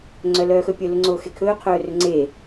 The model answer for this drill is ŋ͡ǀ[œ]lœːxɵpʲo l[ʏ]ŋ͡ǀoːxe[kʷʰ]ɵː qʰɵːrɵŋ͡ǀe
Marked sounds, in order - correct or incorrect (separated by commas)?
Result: correct, correct, incorrect